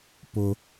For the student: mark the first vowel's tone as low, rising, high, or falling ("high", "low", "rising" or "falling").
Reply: low